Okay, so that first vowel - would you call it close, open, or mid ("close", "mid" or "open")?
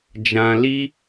open